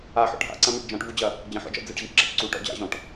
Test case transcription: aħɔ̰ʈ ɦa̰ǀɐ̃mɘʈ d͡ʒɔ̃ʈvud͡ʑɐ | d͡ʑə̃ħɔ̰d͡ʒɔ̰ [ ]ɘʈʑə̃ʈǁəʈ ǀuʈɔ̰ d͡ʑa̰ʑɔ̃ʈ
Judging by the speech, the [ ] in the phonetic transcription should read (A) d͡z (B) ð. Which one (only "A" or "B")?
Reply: A